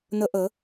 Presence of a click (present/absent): absent